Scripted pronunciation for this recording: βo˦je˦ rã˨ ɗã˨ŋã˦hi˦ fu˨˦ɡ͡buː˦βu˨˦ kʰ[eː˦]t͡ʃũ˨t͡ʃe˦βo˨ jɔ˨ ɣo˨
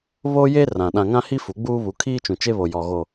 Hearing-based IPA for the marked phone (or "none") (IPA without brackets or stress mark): iː˦